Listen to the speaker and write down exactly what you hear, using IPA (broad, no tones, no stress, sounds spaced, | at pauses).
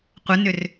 qʷ ə n ʏ r